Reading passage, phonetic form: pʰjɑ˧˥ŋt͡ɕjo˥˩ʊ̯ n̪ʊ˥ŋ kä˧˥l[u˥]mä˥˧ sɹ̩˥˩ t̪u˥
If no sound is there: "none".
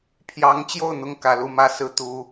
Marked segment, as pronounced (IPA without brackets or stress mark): u˥